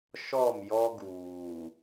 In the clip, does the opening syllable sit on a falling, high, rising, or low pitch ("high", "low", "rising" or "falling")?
falling